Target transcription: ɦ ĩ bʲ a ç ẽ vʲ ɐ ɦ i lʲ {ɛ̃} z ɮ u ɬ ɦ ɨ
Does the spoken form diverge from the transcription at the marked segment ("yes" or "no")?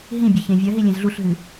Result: yes